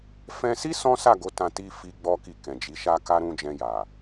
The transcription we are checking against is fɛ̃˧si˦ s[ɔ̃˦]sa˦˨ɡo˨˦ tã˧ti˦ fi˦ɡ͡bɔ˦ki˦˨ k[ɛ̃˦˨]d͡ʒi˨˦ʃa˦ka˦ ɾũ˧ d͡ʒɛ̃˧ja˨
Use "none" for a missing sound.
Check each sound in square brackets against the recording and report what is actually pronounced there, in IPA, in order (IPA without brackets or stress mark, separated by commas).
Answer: ɔ̃˦, ɛ̃˨